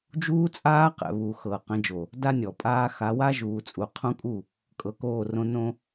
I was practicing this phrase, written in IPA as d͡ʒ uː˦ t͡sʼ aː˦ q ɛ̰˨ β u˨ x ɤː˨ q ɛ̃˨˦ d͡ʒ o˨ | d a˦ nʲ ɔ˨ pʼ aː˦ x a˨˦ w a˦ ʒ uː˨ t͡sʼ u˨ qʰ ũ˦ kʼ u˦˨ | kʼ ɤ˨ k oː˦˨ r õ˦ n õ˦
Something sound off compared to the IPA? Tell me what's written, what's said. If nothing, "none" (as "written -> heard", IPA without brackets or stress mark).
none